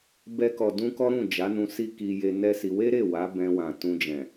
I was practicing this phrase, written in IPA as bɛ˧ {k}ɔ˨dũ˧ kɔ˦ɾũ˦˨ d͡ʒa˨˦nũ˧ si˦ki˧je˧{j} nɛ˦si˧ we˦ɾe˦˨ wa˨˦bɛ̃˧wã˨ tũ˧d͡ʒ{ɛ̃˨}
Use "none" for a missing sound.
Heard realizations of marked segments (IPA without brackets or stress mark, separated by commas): k, none, ɛ̃˨